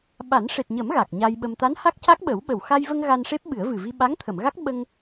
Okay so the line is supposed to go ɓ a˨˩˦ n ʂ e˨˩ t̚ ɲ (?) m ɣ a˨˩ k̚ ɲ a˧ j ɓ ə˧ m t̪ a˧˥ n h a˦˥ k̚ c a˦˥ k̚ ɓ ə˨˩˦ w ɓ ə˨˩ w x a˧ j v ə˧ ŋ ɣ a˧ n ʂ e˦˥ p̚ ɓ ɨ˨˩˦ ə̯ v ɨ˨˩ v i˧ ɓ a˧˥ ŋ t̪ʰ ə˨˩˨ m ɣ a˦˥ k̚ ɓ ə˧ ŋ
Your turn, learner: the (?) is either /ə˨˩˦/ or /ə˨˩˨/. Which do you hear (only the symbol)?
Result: ə˨˩˦